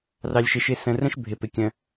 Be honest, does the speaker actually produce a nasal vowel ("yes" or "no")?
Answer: yes